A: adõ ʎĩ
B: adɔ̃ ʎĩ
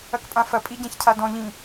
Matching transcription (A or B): B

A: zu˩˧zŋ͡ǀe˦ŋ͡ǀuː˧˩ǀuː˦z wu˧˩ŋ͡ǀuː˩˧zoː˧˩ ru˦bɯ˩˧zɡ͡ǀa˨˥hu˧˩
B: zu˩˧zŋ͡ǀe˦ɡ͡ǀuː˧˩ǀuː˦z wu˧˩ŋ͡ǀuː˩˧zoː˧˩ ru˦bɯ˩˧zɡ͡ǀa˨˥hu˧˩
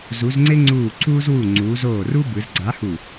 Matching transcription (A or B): A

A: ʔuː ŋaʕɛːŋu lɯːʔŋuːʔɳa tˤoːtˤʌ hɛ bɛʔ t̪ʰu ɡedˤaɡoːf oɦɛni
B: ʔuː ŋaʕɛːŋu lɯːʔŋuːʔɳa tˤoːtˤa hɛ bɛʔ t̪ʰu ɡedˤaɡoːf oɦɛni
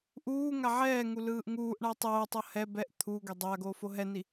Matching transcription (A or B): A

